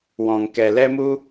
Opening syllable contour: low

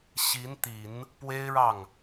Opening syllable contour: rising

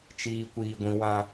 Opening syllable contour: high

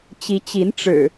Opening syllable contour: rising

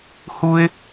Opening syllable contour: high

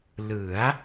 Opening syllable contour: rising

